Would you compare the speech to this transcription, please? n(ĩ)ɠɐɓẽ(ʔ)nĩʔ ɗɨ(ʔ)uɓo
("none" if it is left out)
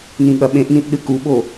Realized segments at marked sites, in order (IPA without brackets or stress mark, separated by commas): ĩ, ʔ, k